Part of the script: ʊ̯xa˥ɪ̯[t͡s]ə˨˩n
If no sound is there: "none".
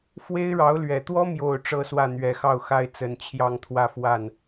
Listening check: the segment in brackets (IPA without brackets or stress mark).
t͡s